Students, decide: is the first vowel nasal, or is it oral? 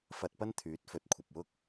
oral